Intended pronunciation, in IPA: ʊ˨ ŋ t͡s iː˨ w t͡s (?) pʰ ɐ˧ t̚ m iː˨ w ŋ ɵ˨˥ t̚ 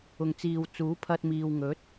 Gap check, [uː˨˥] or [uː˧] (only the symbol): uː˨˥